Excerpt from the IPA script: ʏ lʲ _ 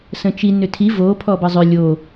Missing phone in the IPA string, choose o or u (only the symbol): o